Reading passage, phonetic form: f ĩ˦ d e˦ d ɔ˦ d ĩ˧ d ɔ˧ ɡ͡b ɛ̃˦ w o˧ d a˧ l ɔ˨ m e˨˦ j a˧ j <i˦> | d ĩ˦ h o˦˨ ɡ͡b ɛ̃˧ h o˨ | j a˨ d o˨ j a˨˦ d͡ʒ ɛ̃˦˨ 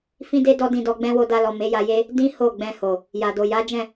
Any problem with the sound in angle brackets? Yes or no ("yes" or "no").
yes